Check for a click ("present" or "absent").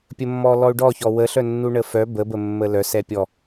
absent